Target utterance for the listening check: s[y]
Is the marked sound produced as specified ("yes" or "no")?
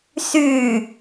yes